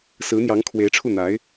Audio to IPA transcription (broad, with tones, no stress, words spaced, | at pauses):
sɹ̩˧˥n̪jɑ˧˥ŋ kʰwe˧˥ɪ̯ʈ͡ʂʰu˥˩ n̪a˧˥ɪ̯